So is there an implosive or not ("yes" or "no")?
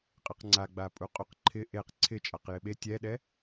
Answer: yes